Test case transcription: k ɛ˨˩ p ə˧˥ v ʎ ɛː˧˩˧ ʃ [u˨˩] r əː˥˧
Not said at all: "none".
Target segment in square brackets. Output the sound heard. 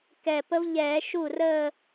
u˥˩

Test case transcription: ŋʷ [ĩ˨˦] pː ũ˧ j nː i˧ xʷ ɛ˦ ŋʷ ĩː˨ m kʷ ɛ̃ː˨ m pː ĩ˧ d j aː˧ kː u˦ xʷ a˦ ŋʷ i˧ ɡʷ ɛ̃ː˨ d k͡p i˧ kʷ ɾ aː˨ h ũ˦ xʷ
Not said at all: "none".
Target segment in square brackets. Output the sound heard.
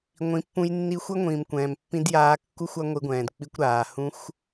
ĩ˨˦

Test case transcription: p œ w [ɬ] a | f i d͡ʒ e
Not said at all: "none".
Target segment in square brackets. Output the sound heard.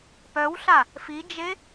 ɬ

